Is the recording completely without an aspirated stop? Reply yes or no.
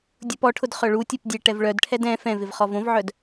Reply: no